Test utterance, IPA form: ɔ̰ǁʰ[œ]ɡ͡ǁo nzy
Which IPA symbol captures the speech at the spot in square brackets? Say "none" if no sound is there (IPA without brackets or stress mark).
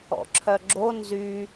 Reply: œ